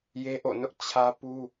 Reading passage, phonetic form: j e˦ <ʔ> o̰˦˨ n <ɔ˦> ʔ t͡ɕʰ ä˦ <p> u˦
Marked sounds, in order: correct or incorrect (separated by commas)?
correct, incorrect, correct